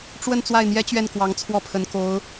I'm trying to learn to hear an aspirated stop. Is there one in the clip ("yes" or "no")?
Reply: yes